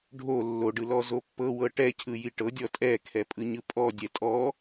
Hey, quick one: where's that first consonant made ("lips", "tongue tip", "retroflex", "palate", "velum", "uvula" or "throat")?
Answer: retroflex